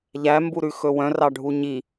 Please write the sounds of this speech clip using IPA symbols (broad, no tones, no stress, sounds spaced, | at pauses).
ʎ æ m b u ɾ ʉ x ɵ w œ̃ r ɑ ɖʱ u ɲ i